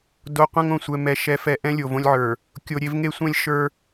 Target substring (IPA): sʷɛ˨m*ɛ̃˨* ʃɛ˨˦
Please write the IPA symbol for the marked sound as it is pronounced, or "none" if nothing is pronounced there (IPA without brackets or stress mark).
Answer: ɛ˨